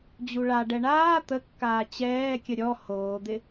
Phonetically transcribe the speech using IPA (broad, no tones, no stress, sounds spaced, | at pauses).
d͡ʑ u ɭ a ɖ ɛ ɳ aː t̪ ə kː aː t͡ɕ ɛː kʲ ə ɾʲ ɔ h oː d̪ ɪ